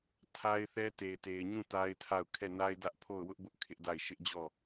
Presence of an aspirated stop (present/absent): present